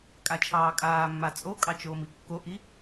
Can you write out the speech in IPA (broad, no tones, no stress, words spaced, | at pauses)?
kʼat͡ʃʰɑːkʼaːmːa t͡sʼokʼɑ t͡ʃoːmikːoʔi